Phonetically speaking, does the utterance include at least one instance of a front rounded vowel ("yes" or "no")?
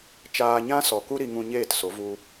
no